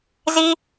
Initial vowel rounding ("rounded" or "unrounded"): unrounded